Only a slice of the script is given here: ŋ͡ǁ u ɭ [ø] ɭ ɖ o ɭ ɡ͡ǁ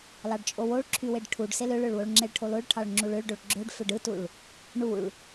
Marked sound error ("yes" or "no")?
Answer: no